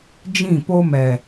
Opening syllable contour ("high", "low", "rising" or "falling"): falling